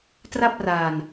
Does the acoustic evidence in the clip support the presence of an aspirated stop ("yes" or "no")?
no